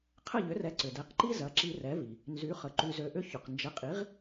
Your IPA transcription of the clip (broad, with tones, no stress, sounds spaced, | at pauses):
qʰ ə˥˩ ʎ ʏ˩˥ r ɛ˩˥ ǀ ʏ˩ d ɛ˩˥ q ǃ i˥ z ɐ˩˥ ǁ i˧ r ɛ˩˥ v i˩ | n z y˩˥ χ ə˩ ǃ y˧ z ø˧ ʔ ʏ˥ ç ʊ˩ q n d͡ʒ ə˩˥ qʼ i˩˥ ʁ